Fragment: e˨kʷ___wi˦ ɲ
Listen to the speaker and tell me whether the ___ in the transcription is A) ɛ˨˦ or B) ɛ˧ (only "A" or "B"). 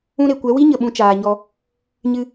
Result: A